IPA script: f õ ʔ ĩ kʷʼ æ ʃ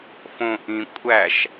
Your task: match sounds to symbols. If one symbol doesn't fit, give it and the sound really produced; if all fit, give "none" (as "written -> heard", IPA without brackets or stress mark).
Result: none